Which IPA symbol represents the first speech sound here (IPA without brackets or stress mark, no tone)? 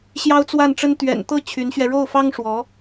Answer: ɕ